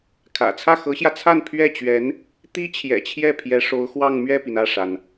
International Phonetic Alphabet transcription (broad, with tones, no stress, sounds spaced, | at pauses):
kʰ ä̰˨˩ t͡sʰ ä˥˩ x ɤ˧˥ ɕ j ä˧ t͡sʰ a˥˧ n pʰ ɥ ɛ˥˩ t͡ɕ ɥ ɛ˧˥ n | t̪ i˥ t͡ɕʰ j ɛ̰˨˩ t͡ɕʰ j ɛ˥˩ pʰ j ɛ˧˥ ʂ o˧˥ ʊ̯ x w ɑ˥˧ ŋ m ɥ ɛ˥˩ p i˩ n ä˥˩ ʂ a˩ n